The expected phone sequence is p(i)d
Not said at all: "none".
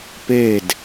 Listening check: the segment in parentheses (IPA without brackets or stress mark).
e